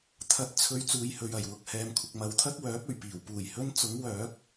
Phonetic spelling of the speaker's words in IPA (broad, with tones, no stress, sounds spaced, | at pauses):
t̪ʰ ɐ˨˥ t̚ t͡sʰ ɵ˨˧ ɥ t͡s uː˨ j h ɵ˨ ɥ ɐ˨˩ j w ʊ˨ k̚ h ɛː˨ m kʷʰ ɪ˨ k̚ m ɐ˨ w t̪ʰ ɐ˥ k̚ w œː˨˥ p̚ ɵ˨˩ ɥ p iː˨˩ w p uː˨˩ j h ɵ˥ n t͡s ʊ˨˥ ŋ w œː˨˥ k̚